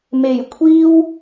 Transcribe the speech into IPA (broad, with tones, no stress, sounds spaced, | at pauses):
m e˨˩ j kʷʰ iː˥ w